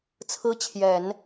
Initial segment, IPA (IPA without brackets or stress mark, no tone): t͡sʰ